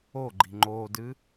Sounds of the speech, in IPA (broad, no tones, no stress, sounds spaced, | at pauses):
o ɡ͡ǃ i̤ ŋ͡ǃ o d ɨ